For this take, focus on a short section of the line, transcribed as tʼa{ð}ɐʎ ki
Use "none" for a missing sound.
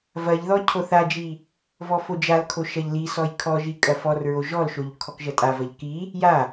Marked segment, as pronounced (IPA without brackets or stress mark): v